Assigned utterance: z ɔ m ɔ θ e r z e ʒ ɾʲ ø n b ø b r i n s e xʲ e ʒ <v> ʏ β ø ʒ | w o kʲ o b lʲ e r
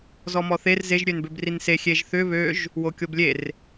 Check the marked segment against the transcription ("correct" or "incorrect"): incorrect